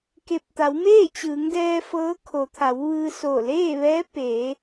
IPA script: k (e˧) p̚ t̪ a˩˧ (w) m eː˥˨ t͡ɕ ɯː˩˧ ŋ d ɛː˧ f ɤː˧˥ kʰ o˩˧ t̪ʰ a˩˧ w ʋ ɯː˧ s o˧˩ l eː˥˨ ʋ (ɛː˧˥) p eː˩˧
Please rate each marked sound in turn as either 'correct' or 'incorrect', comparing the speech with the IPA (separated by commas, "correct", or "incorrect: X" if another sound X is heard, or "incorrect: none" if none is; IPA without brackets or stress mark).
correct, correct, correct